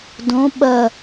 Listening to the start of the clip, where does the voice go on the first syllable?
rising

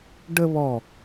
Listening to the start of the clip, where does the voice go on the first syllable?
high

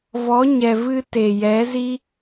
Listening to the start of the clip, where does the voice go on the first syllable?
rising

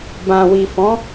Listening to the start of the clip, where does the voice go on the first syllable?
low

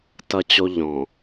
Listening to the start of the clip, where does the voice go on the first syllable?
low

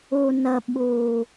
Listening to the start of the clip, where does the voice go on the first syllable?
low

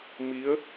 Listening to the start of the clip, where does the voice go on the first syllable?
rising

